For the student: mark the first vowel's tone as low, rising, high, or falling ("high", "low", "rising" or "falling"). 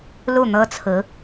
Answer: falling